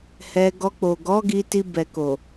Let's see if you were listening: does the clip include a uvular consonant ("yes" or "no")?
no